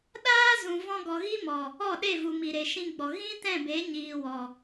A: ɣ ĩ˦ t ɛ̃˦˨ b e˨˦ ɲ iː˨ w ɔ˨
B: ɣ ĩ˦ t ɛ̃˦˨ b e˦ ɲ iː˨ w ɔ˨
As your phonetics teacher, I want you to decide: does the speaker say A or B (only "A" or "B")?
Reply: A